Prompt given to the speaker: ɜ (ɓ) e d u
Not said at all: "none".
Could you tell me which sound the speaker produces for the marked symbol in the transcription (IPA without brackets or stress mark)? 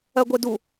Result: ɡʷ